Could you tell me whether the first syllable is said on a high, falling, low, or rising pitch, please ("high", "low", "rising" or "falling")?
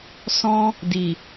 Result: high